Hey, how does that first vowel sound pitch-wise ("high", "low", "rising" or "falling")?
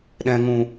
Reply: low